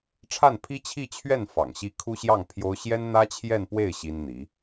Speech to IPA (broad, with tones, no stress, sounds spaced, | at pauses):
ʈ͡ʂʰ a˥˩ n pʰ i˥ t͡ɕʰ i˥˧ t͡ɕʰ ɥ ɛ˥˩ n f ɑ̰˨˩ ŋ ɕ i˥ kʰ u˥ ɕ j ɑ˥˩ ŋ pʰ j o˥ ʊ̯ ɕ j ɛ˥ n n̪ ä˥ t͡ɕʰ j ɛ˥˧ n p w e˥˩ ɪ̯ ɕ i˥ n n̪ i˧˥